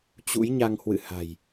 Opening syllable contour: rising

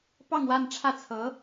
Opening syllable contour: falling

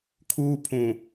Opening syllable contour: high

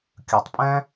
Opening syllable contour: low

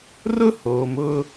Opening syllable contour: high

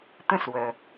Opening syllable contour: falling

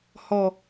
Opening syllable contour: low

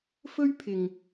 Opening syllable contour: high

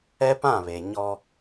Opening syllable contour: high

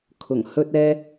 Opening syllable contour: low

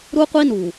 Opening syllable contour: high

